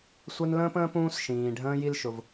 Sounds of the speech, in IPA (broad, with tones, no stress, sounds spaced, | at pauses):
sʷ ɛ˦ n l ə̃ː˥ p ə̃ː˥ p ũː˦ s ʃ ĩː˩ ɖʱ ə̃ː˦ j i˥ l ʃ ʊ˩ v